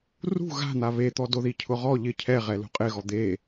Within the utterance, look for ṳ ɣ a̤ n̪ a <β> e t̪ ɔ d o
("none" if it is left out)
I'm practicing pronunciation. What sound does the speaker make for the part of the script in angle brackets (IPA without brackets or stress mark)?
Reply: β